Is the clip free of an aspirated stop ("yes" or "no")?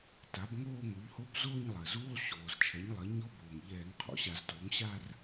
no